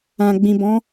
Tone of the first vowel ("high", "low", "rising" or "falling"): low